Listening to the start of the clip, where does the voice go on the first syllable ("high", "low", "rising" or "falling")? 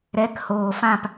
rising